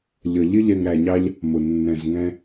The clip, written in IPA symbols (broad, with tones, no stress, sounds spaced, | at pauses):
ʎ ʌ˧ ʎ ɪ˦ ʎ ɛ˧ ŋ ɾ æ˧ ɲ ɑ˦ ʎ | m ʊ˧ nː ɛ̃˧ z ŋ ɛ̃˦